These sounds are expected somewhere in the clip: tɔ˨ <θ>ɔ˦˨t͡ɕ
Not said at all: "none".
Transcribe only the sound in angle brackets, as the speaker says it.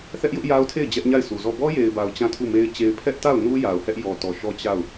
ʃ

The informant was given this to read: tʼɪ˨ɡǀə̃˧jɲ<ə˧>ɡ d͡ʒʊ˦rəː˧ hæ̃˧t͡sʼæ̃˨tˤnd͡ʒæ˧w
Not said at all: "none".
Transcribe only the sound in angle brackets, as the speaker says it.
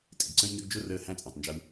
ə˧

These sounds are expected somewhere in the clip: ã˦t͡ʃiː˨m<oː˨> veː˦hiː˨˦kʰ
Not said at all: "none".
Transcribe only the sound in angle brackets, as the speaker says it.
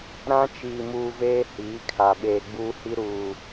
uː˨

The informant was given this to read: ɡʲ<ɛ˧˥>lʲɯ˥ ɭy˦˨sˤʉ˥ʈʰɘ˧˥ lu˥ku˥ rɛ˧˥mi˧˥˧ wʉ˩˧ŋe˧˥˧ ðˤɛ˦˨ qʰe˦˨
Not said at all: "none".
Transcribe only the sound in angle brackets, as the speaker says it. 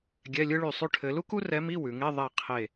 ɛ˧˥˧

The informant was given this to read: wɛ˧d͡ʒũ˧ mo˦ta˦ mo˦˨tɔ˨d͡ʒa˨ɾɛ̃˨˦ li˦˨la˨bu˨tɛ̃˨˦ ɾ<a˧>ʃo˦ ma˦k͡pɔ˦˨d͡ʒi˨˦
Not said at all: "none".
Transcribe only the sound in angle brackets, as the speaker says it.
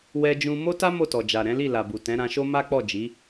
ã˧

